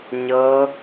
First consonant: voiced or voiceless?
voiced